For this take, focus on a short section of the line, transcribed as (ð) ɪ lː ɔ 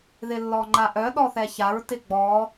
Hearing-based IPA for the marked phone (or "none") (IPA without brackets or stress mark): ð